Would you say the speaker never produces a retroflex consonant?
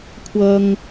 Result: yes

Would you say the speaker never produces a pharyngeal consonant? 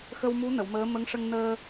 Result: yes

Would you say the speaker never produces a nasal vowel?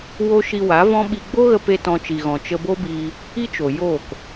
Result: no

